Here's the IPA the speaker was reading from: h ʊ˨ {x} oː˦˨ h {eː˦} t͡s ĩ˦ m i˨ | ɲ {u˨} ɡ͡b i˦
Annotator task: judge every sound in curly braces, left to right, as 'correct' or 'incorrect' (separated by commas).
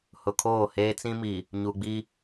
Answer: incorrect, correct, correct